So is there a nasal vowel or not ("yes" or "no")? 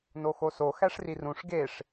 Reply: yes